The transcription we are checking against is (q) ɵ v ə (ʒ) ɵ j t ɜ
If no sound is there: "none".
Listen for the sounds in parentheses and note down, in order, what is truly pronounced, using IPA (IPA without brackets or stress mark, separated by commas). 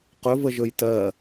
q, ʒ